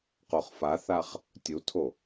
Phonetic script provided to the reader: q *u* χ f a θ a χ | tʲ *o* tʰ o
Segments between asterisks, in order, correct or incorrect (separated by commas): incorrect, incorrect